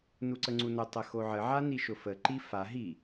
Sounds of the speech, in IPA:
n u ǀ ə ŋ͡ǀ u n ʊ tˤ ə x o ʕ ə ʕ a n i ʃ ʊ f ə ǃ i f a ɦ i

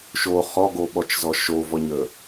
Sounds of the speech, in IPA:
ʃ o χ ɔ ɡ o ɓ ɔ t͡ʃ z ɔ ʃ o v ɔ ɲ ə

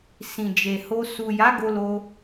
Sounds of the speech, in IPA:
s ĩ˨ d͡ʒ e˨ h o˧ s u˨ j a˨˦ ɡ o˧ l o˧

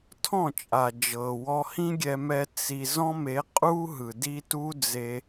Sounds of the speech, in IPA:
tʰ ɔ̃˦˨ t͡ʃʼ a˨ d͡ʒ ɤ˨ w ɔ˧ h ĩ˦ ɡʲ ɛ˧ m ɛ˧ t͡s i˧ z ɔ̃˦ m e˨˦ qʼ u˦ ɦ ɯ˨ d i˦ t u˦ d͡z e˧

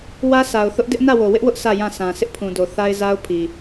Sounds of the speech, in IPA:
w ä˦ sʰ a˨ ʊ̯ θ ʊ˦ ʔ d ɪ˦ ʔ n ä˦˨ w o˨ w ɪ˦ ʔ w ʊ˦ ʔ s ä˦˨ j ã˦˨ s ã˨ s ɪ˦ ʔ pʰ ũ˨ d o˨ θ a˦ ɪ̯ z a˦ ʊ̯ pʰ i˨

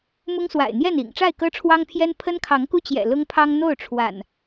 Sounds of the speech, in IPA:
m ʊ˦ ŋ s w a̰˨˩ ɪ̯ n̪ j ɛ˥˨ n ḭ˨˩ ŋ ʈ͡ʂ a˥˨ ɪ̯ k ɤ˦ ʈ͡ʂʰ w ɑ˦ ŋ pʰ j ɛ˦ n pʰ ə˦ n kʰ ɑ˨˦ ŋ k u˦ t͡ɕ j ɛ̰˨˩ l ʊ˦ ŋ pʰ ɑ˦ ŋ n̪ o˥˨ ʊ̯ ʈ͡ʂʰ w a̰˨˩ n

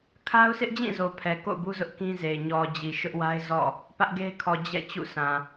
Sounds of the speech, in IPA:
kʰ a˦ ʊ̯ sʰ ɪ˦ ʔ d͡ʑ ĩ˦˨ z o˨ pʰ ɛ˨ k o̰˦˨ ʊ̯ b u˦ z ʊ˦ ʔ k ĩ˦ z e˨ ɪ̯ ɲ ɔ˨ d͡ʑ i˨ ʃ ʊ˦ ʔ w a˦ ɪ̯ z ɔ̰˦˨ | p ä˦ ʔ ɡ e˦ ɪ̯ kʰ ɔ˨ d͡ʑ ɛ̰˦˨ t͡ɕ ṵ˦˨ sʰ ã˨

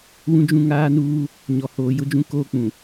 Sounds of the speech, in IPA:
w ũ˦ d͡ʒ ũ˦ ŋ aː˦ n uː˦ | ɲ ɔ˨ h oː˨ j ʊ˦ d͡ʒ ũ˦ k oː˦ k͡p ũ˨

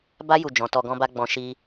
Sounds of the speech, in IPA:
b a˦ j u˦˨ d͡ʒ ɔ̃˨˦ t ɔ˧ ɡ ɔ̃˦ b a˦ ɡ͡b ɔ̃˧ ʃ i˦

